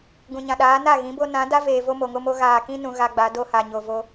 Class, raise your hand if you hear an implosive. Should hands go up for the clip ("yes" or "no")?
yes